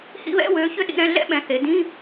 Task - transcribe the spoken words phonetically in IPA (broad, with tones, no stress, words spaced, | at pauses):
hḭ˧˥˧βɛ̰˧˥˧wøː˩˥ çʏ˥ɗḭ˧˥˧ɾɛ̃˧˥˧ ɮɛ̰˥ɓɛ̃˩˥ θe˩˥ dĩ˧˥˧